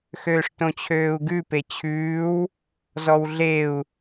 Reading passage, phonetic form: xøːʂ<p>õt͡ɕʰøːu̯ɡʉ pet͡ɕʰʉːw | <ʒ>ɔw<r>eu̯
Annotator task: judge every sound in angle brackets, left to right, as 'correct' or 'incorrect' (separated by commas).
incorrect, incorrect, incorrect